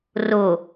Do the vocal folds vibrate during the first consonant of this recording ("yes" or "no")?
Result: yes